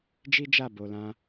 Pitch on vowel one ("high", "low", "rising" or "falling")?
high